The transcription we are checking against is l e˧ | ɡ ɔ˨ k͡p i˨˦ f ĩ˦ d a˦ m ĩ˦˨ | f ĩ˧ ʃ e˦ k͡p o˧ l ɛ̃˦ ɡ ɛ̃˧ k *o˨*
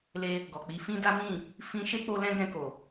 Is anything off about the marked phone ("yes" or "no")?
no